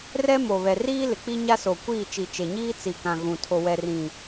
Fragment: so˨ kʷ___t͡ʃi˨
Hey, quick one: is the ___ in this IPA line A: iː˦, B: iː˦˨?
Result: B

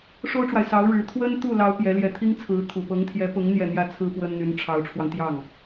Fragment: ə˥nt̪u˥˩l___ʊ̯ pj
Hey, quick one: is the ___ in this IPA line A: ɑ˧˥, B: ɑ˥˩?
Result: A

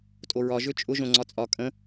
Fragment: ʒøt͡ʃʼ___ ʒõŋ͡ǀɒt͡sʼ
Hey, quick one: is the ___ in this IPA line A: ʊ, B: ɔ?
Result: A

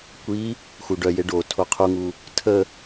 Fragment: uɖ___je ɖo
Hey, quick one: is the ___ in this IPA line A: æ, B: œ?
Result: B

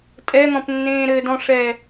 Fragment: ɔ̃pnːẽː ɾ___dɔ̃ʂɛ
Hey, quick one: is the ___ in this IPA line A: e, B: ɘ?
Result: B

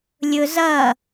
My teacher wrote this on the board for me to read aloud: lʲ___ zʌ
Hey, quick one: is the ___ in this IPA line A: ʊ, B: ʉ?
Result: A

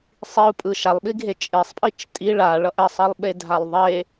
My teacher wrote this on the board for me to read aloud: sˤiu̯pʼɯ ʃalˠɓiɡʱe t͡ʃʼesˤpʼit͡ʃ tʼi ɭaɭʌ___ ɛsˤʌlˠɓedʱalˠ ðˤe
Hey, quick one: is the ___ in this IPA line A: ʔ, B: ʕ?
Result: A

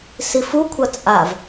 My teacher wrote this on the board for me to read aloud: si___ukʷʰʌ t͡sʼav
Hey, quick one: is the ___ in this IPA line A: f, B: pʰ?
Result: A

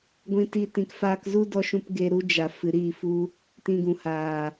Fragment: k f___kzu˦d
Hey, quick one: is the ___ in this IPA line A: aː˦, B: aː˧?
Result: B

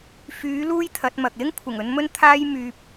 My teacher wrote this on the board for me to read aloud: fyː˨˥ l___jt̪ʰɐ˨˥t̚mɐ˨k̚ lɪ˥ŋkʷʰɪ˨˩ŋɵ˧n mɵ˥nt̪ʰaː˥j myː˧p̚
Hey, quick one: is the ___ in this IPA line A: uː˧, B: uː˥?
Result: B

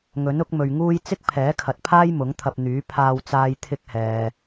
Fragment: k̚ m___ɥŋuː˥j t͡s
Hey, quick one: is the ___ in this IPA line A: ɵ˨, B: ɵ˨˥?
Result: A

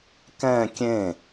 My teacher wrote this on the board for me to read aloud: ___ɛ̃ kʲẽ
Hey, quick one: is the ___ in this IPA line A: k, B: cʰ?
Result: A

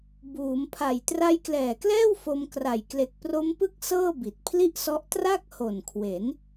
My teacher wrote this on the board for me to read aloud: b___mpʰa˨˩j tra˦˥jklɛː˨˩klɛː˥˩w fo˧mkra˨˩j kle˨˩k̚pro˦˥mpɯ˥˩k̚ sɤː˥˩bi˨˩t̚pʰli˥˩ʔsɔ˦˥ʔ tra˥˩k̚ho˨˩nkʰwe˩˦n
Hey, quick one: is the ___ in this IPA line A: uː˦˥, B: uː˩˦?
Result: B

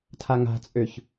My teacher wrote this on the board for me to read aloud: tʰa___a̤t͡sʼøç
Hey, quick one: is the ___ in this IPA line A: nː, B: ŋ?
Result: B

